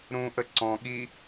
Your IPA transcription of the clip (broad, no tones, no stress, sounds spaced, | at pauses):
ɾ ũ ʔ ə ǀ ɔ̃ ɠ i